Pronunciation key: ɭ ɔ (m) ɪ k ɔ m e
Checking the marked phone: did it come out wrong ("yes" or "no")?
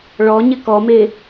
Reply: yes